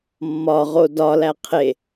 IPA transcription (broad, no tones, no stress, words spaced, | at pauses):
mːɒʁo dɒlæ qʰe